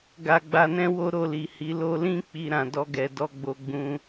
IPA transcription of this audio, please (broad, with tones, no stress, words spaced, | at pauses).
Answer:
ɡa˧ɡ͡ba˧nɛ̃˦ wo˦ɾo˧li˨ hi˨˦ lo˧lĩ˦ k͡pi˧ɾã˨ dɔ˧ɡɛ˨dɔ˧ɡ͡bo˧ ɡ͡bũ˧